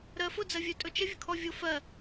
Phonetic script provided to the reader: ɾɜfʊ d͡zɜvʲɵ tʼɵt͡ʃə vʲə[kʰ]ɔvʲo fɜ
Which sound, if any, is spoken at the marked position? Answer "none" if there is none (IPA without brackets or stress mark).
kʰ